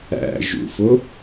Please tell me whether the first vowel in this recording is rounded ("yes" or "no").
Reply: no